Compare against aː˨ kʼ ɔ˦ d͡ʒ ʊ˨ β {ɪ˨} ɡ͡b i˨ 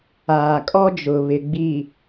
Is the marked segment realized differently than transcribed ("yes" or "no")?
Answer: no